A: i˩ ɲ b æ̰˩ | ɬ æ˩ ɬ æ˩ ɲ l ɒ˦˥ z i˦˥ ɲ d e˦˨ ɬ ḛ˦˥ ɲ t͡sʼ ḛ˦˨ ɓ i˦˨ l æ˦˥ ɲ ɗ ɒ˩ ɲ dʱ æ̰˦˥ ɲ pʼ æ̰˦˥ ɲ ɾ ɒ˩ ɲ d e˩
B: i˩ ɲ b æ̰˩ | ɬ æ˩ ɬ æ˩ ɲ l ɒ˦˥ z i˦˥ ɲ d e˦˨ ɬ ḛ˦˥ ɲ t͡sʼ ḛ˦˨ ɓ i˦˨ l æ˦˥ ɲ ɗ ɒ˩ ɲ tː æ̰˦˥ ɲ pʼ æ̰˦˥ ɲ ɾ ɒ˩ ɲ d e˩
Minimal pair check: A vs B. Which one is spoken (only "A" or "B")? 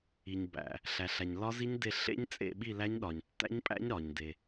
B